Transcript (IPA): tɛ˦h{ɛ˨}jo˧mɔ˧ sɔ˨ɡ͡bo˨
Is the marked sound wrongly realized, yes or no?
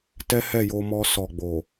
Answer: yes